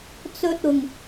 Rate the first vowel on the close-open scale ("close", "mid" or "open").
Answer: mid